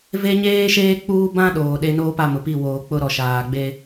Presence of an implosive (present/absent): present